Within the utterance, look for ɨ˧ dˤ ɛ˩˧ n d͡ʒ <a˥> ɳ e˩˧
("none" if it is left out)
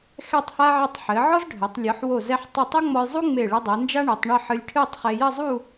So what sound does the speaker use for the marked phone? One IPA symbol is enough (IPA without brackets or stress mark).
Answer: a˥